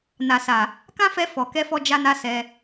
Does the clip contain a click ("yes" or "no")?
no